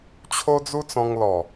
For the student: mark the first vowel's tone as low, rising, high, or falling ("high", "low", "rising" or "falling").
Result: high